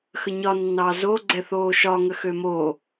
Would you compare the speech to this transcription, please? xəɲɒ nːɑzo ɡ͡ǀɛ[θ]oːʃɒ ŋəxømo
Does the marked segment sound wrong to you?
no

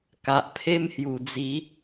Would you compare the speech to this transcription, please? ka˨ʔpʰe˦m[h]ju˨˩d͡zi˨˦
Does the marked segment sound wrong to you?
no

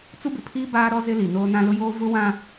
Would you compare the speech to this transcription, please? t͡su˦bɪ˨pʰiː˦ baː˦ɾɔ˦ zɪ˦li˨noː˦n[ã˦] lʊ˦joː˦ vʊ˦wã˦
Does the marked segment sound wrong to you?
no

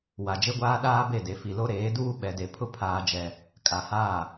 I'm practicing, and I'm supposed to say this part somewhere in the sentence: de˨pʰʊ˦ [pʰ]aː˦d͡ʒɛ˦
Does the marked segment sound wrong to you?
no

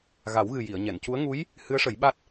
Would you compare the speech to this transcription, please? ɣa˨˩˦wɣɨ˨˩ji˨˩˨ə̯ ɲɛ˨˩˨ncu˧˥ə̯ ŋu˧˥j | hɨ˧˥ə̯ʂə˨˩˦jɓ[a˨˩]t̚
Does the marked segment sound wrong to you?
yes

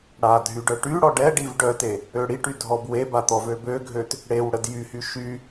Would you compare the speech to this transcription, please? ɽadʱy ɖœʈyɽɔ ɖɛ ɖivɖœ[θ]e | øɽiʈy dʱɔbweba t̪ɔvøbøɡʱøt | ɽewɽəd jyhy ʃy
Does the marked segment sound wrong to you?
yes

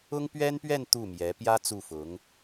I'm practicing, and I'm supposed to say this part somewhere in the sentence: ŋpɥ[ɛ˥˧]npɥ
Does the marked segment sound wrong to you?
yes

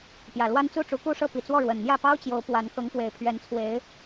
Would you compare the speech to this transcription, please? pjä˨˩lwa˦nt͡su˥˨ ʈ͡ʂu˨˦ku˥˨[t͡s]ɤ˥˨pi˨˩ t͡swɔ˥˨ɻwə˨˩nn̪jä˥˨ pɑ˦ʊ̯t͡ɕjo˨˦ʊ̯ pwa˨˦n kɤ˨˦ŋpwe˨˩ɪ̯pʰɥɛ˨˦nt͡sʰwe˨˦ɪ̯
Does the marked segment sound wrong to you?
yes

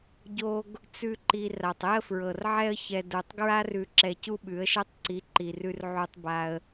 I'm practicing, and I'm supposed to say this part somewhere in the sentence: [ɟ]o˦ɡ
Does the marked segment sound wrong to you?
no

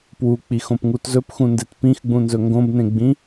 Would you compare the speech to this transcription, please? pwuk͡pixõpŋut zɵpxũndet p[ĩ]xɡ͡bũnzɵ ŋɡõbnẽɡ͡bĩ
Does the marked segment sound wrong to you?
no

